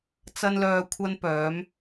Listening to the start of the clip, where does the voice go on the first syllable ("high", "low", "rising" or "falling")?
high